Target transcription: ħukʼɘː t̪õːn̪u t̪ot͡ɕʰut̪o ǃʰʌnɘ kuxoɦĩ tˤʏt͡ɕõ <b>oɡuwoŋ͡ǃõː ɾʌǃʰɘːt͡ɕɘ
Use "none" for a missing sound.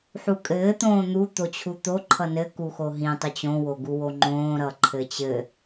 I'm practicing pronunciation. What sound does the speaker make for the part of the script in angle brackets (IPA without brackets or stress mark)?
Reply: w